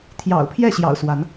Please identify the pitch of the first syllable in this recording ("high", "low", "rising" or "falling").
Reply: low